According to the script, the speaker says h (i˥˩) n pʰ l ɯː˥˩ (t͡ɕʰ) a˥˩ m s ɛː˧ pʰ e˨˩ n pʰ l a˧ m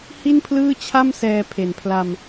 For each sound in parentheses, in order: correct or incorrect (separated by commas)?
correct, correct